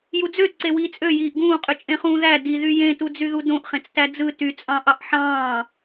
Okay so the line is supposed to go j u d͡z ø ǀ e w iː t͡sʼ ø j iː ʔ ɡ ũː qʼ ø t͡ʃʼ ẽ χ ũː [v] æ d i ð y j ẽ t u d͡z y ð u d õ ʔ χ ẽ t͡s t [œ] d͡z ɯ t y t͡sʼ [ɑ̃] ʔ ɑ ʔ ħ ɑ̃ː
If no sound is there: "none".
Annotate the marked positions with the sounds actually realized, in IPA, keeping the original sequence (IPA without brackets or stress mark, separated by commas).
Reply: ð, æ, ɑ̃